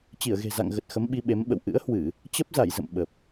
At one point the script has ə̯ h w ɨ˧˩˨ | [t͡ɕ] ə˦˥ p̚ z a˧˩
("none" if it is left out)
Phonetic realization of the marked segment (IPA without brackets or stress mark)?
t͡ɕ